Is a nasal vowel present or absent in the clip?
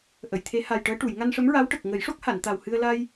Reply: absent